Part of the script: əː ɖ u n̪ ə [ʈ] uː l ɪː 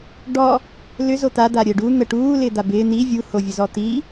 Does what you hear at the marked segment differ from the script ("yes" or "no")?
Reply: no